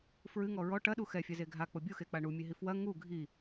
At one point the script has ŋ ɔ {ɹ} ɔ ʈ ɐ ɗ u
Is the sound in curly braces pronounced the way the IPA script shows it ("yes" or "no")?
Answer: yes